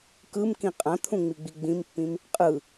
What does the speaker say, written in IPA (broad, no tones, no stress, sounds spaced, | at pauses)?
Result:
k ɯ m k ĩ qʼ ã t̪ʰ ũ ŋ͡m i ɡ͡b i ɡ͡b ĩ m pː ĩ m | qʼ ɯ